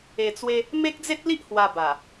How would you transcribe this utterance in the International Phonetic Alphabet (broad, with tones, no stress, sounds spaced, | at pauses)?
e˧ t͡s w e˦ | m e˦ k̚ d͡z e˦ t̚ l i˦ ʔ h w a˧ b a˨˩